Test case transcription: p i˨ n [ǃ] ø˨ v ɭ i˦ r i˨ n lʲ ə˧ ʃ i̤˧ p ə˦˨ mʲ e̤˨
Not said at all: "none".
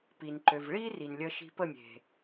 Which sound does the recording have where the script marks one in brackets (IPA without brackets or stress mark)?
ǃ